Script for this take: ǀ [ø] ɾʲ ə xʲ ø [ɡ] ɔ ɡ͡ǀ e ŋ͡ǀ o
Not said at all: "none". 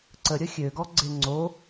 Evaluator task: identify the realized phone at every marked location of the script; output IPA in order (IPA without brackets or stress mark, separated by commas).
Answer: ə, ɡ